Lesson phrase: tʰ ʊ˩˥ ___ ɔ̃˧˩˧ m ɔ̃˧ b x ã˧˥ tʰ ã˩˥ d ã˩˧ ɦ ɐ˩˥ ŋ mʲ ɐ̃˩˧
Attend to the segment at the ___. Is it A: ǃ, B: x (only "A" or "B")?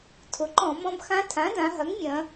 A